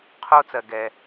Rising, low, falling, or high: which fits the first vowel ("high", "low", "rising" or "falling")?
high